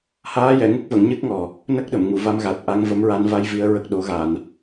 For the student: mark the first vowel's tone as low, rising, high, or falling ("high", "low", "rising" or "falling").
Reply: rising